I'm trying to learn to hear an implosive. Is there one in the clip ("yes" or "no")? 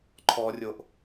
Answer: no